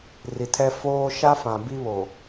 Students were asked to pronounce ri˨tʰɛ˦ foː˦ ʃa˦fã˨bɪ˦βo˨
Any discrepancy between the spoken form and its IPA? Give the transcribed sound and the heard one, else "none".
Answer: ɪ˦ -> i˦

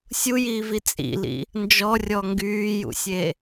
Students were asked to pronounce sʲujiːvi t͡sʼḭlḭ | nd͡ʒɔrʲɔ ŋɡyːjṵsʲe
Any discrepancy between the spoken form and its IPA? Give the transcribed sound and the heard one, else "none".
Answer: none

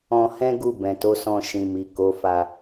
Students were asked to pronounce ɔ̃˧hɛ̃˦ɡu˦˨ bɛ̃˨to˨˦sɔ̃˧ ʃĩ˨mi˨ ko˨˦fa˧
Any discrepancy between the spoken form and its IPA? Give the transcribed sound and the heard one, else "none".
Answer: none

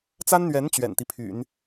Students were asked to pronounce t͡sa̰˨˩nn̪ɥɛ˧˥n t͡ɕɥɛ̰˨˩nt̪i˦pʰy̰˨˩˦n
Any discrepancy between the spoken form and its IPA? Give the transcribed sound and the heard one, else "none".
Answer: a̰˨˩ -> a˥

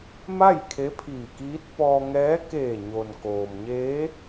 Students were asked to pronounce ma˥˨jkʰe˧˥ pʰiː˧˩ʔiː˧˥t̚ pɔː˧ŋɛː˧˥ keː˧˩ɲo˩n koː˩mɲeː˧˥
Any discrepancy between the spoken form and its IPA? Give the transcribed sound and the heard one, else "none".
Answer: ʔ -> k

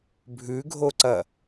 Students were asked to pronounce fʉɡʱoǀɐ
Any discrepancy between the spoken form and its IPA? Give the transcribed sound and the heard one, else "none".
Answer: f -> bʱ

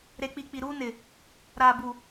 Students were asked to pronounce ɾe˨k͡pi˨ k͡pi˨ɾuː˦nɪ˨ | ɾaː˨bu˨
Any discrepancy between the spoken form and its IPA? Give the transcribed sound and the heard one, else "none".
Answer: none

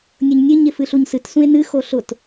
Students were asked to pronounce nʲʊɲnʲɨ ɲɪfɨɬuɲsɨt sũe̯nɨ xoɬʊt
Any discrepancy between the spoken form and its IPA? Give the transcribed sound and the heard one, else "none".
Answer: none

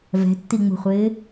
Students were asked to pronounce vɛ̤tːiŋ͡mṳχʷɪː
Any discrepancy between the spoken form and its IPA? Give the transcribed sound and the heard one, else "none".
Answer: none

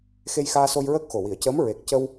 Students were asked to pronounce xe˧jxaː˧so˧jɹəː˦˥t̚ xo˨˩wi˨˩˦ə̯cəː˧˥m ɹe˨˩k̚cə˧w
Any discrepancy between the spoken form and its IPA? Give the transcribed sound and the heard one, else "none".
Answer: t̚ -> k̚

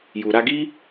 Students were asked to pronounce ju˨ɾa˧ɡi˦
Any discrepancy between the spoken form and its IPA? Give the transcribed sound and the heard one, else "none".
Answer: none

